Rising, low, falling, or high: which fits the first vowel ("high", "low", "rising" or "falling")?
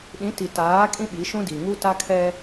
rising